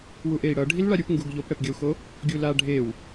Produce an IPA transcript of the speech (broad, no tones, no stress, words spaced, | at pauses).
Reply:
wuʔei̯ɽʌ ɖʱilɭaɾʲupŋɡuɡ ʎopɽɛpɡʲʌu̯xo | ɡʲula ɖʱew